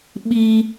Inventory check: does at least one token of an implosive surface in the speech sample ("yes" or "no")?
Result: yes